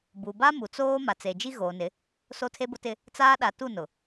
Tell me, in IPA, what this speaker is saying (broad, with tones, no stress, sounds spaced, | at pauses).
b u˨ b a˦ m u˨ t͡s oː˦ m a˨ t͡s e˨ d͡ʒ i˦ ɣ oː˨ n ɪ˨˦ | s o˦ tʰ e˦ b ʊ˦ t ɪ˦ | t͡s aː˦ ɗ a˨˦ t u˦˨ n ʊ˨